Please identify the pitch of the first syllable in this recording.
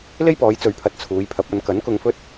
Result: high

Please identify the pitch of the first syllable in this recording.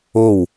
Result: falling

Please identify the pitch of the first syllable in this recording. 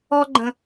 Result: high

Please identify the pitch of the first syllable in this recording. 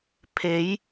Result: rising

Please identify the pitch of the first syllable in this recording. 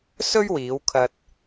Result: high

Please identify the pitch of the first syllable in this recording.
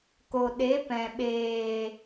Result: low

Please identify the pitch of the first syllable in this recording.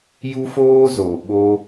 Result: high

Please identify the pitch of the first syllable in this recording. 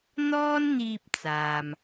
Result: high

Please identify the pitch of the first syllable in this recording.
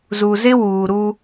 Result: low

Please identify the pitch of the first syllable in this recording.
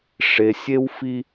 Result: low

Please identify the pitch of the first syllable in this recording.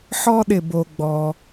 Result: high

